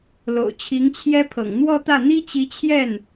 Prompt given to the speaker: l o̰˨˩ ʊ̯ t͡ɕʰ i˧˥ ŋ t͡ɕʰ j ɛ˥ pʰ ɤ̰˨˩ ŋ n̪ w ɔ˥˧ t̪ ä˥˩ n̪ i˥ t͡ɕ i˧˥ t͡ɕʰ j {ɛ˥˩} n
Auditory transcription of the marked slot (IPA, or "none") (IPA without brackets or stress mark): ɛ˥˩